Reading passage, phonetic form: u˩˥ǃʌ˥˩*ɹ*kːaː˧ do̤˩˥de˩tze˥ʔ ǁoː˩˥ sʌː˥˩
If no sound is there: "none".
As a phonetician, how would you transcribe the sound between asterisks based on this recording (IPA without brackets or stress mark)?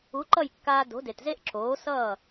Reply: j